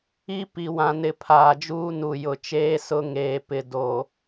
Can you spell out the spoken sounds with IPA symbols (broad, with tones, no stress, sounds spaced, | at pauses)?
i˦ p i˨ w ã˨ n ɪ˨ pʰ aː˨ d͡ʒ uː˦ n u˨ j ʊ˨ t͡ʃ eː˦ s ʊ˦ ŋ eː˨ p ɪ˨ d o˨